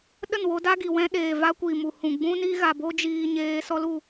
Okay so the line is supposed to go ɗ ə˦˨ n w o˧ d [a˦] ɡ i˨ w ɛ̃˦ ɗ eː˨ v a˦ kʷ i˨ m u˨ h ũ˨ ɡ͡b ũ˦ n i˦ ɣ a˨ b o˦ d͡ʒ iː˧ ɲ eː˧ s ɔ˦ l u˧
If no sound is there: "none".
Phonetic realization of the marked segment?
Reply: a˦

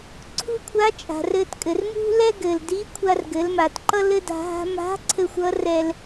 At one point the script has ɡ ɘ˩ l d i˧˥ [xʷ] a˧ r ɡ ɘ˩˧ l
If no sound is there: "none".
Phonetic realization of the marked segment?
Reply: kʷʰ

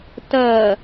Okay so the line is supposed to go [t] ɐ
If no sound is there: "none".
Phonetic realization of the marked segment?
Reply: t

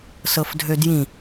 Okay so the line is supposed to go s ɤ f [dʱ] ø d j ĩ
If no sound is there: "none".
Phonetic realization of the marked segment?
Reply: dʱ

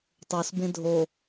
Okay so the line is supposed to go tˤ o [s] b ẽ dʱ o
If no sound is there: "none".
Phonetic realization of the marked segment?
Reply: s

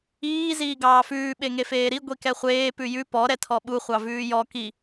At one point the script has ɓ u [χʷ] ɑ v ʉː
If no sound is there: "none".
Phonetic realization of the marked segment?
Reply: χʷ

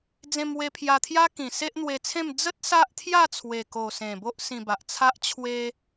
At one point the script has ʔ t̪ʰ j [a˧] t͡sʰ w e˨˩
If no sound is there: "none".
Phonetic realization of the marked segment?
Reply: a˥˧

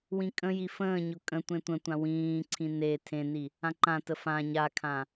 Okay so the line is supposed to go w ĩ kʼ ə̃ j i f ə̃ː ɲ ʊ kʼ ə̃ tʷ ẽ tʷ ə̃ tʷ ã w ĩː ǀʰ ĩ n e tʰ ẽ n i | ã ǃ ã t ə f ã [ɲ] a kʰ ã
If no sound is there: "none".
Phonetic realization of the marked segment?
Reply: ɲ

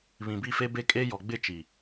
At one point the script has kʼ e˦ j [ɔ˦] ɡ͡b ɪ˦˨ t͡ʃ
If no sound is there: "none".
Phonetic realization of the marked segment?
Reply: ɔ˨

